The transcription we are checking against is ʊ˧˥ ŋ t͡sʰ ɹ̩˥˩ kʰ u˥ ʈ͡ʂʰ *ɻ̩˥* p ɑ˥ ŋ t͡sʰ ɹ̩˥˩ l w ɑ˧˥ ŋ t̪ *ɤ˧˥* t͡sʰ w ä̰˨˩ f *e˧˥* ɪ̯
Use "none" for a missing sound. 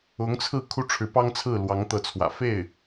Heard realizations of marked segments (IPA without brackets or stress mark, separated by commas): ɻ̩˧˥, ɤ˧˥, e˥˩